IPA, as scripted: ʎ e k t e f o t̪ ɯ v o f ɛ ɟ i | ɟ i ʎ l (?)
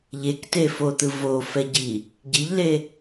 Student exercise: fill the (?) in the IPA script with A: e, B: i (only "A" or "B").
A